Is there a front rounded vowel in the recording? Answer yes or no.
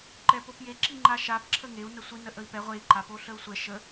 no